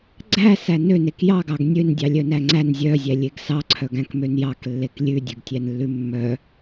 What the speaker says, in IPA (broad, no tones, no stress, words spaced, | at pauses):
ɡ͡ǀæ sænønek jɑɡɑɡ nʲøndʲɑ lʲœnæŋ͡ǀæn zʲœzʲælʲeɡ sɑǀʰœɡæ̃kmøn jɑklːek lʲʉdʲøɡtʲænlːʉ mːœ